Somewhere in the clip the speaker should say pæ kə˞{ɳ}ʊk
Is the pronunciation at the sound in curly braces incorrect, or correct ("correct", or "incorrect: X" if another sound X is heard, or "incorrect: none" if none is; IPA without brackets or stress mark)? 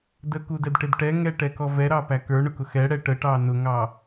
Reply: correct